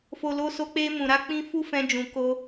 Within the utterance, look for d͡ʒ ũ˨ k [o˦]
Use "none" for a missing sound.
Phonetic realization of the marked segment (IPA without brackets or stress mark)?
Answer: o˧